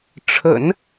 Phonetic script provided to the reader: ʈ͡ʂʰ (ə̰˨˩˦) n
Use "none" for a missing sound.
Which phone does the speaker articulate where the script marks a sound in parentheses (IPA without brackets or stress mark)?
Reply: ə̰˨˩˦